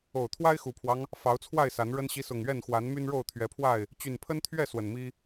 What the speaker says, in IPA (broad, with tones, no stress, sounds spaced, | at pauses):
o˨˩ ʊ̯ t̪ʰ w a˦ ɪ̯ x u˨˩ pʰ w ɑ˦ ŋ | f ɑ˨˦ ʊ̯ t͡sʰ w a˥˨ ɪ̯ s a˨˦ n ɻ ə˦ n ɕ i˦ s ʊ˨˩ ŋ ɥ ɛ˥˨ n x w a˨˦ n m y˦ n ɻ o˥˨ ʊ̯ t̪ʰ ɥ ɛ˨˦ pʰ w a˥˨ ɪ̯ | t͡ɕ y˨˩ n pʰ ə˦ n t̪ʰ ɥ ɛ˥˨ s w ə˨˩ n m i˦